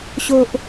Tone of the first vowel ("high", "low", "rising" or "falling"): high